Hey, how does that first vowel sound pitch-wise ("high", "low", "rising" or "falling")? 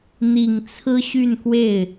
low